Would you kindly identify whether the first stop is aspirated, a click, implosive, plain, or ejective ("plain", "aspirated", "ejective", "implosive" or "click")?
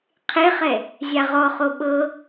aspirated